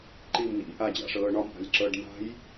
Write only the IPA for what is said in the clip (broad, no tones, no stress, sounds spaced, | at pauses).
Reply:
ǃ i m n ḭ ʔ a d͡ʑ a̰ ʂ ɤː ɳ ɒ m ʔ a̤ lʲ ǁ ɤː ɖ m a̤ j